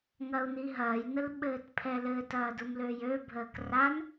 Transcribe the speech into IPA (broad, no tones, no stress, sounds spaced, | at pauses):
ŋ ɐ u̯ n i ɦ ɐː j n ə l ɓ ɘː t pʰ ɛ l ɘ t ɐː d u m l ø j ø bʱ əː k r a n